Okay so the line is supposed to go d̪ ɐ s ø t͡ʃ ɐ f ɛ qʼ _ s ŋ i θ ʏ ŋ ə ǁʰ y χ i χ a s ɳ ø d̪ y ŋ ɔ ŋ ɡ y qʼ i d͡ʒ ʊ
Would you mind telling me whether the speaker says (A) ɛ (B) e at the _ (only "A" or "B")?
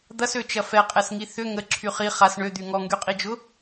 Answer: A